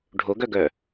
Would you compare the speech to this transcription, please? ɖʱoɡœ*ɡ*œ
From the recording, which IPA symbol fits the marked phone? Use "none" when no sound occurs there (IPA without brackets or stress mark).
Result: ɡ